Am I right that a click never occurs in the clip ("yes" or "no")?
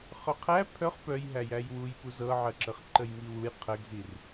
no